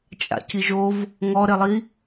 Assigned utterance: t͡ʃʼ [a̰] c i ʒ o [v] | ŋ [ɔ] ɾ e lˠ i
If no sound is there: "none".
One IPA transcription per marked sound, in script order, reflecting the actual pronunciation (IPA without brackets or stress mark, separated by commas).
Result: a̰, v, ɔ